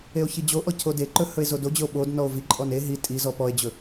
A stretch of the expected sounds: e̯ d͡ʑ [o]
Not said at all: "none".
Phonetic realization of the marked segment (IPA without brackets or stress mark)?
ɵ